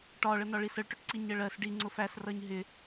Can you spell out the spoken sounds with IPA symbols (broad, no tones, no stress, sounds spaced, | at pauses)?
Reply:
ʈ ɒ ɭ ə n ɒ ɭ i s ə ɭ ʈ ʊ ʈ ǀ i ɲ ə ɭ ɜ s ɖ i ŋ͡ǀ ʊ f æ s r ʌ ɲ ɦ ɪ